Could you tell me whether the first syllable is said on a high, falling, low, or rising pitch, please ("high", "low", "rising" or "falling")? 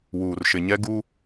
low